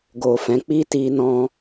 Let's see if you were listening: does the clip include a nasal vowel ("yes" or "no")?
yes